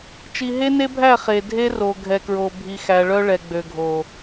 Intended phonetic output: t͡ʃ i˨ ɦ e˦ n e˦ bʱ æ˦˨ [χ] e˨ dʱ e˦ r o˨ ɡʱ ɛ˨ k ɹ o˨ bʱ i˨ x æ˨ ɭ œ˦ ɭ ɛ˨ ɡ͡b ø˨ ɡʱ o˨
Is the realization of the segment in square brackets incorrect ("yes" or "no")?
no